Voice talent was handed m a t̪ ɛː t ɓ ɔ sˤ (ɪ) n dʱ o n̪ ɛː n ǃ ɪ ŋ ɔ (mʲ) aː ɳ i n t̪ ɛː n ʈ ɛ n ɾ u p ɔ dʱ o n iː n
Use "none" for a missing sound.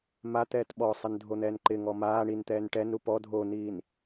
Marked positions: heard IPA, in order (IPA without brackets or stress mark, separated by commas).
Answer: ɪ, m